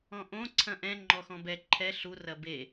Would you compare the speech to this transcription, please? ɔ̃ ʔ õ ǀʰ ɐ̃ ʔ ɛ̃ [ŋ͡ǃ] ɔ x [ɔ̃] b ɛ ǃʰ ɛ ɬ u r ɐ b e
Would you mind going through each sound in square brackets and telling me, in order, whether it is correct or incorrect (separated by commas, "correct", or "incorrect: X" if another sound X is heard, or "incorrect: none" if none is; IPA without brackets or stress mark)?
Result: correct, correct